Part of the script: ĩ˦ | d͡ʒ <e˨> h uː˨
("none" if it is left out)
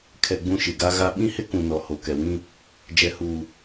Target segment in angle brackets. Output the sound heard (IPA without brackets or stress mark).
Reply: ɛ˨